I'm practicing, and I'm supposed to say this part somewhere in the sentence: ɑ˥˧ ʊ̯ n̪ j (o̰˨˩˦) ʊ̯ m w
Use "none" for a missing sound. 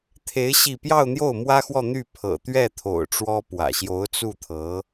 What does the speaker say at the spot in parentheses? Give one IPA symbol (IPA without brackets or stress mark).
o˥˩